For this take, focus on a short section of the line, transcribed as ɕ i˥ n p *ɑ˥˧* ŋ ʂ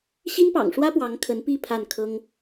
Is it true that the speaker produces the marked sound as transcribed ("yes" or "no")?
no